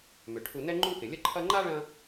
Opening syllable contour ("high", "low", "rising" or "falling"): low